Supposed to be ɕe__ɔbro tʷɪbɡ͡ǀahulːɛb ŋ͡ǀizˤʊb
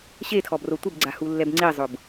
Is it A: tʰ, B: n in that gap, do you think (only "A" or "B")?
A